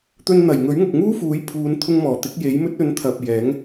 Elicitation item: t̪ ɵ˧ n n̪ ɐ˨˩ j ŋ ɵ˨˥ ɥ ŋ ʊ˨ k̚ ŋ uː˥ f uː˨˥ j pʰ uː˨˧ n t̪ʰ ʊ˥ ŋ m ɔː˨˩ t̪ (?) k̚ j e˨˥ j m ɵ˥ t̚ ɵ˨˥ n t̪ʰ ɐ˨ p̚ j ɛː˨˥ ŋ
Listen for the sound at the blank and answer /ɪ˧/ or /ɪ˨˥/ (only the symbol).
ɪ˨˥